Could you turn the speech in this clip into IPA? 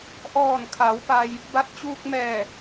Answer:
ʔ ɔː˧˩ n kʰ a˩˧ w p a˧ j | b a˧ t̚ t͡ɕ uː˧ k̚ m ɛː˧˩

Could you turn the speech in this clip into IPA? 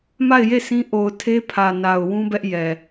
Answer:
m a˦˨ ɪ̯ j e˦˨ s ĩ˦ ʔ o˨ ʊ̯ tʰ e˦ pʰ ä˨ n a˨ ʊ̯ w ũ˦ b ɛ˦ ʔ j ɛ˨

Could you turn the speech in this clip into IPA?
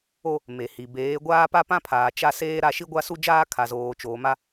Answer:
o˦ | m e˨ h i˨ b eː˨˦ ɡʷ aː˦ p a˦ p ã˦ pʰ aː˨ t͡ʃ a˦ s eː˦ ɾ a˦ ʃ i˦ ɡʷ a˦ s u˦ d͡ʒ aː˦ kʰ a˨ z oː˨ t͡ʃ oː˨ m a˦

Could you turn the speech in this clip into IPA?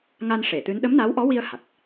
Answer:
ŋ a˧ n ʂ e˨˩˨ t̪ ɨ˧˥ n ɗ ə˧˥ m n a˧˥ w ʔ ɔ˧˥ w i˧ ə̯ h a˨˩ k̚

